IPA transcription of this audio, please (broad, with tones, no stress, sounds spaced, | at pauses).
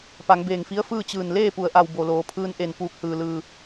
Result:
p a˩˧ ŋ b eː˧˩ ŋ f i˧˥ ə̯ f ɯː˥˨ t͡ɕ ɯː˧˩ n l eː˥˨ p u˩˧ ə̯ ʔ a˩ w b o˩ l oː˩˧ pʰ ɯː˧ n ʔ e˧˩ n p uː˧˩ k̚ h ɯː˩ l ɯː˩